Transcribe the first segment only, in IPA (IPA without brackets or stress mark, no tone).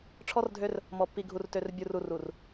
ʈ͡ʂʰ